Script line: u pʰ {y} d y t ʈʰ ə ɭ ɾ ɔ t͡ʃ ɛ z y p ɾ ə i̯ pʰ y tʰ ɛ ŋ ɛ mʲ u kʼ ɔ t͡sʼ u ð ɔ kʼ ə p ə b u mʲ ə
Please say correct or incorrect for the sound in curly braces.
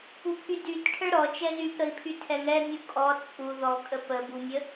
correct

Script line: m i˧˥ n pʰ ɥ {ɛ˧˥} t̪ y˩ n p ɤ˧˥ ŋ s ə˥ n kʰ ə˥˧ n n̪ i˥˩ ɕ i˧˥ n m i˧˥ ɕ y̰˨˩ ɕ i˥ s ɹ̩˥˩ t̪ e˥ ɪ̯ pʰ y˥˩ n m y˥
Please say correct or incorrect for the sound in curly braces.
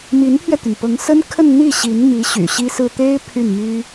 incorrect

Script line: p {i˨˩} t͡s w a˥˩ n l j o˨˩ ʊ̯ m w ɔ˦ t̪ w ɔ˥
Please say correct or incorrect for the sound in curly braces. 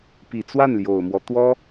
correct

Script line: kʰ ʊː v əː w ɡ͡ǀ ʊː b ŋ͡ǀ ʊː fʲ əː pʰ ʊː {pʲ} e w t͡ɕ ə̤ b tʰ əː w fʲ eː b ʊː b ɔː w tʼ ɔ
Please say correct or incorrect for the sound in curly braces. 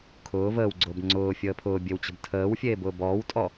incorrect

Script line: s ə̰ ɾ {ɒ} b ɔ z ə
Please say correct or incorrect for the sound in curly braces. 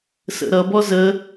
incorrect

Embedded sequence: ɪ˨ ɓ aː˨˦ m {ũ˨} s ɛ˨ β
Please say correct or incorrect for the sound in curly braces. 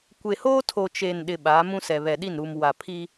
incorrect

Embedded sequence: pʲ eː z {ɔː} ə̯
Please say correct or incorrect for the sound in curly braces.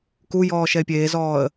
correct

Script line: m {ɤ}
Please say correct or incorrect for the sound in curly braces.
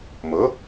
correct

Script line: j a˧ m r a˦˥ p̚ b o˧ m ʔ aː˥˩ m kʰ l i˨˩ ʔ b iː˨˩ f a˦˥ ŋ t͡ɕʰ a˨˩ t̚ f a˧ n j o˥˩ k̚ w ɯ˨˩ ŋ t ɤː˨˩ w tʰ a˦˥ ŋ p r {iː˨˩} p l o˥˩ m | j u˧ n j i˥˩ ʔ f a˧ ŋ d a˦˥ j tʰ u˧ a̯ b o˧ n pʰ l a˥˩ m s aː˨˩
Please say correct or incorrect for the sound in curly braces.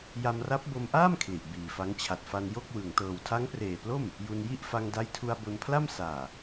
incorrect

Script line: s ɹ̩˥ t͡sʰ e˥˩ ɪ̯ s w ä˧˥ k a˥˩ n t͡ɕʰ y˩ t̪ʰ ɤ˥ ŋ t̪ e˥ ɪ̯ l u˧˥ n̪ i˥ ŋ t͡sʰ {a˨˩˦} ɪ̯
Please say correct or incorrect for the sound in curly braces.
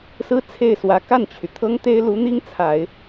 correct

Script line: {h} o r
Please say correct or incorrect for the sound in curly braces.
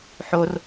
incorrect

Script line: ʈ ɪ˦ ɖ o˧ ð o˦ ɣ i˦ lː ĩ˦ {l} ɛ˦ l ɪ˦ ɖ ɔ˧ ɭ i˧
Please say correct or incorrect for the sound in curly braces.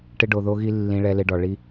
incorrect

